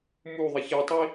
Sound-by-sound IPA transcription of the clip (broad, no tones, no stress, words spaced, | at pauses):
muðˤɪ çitˤi